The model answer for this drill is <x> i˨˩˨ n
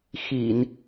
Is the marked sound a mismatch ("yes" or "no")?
no